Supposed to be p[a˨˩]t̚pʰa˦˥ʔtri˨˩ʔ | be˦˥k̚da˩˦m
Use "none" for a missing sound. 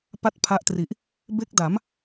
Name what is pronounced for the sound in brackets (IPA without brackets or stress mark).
a˥˩